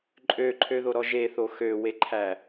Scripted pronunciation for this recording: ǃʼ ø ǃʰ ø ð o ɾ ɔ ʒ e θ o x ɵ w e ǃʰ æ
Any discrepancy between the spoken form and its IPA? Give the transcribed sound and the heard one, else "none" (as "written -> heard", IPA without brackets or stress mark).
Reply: ɵ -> ø